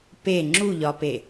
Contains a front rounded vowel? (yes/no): no